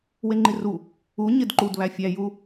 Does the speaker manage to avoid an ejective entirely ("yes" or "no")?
yes